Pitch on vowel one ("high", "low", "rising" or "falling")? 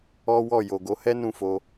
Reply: high